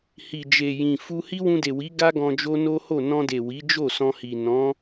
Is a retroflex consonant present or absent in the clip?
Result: absent